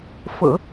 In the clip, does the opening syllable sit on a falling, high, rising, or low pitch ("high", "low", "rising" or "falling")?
low